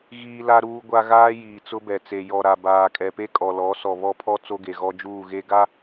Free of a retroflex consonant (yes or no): yes